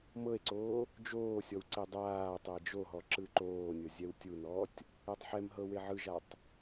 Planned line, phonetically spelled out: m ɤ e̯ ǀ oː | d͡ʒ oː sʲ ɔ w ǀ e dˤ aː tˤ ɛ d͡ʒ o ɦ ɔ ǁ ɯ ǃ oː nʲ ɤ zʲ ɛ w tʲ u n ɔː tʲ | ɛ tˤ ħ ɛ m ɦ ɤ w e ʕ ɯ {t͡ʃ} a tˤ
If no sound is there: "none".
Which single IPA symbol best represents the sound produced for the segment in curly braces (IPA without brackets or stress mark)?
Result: ʒ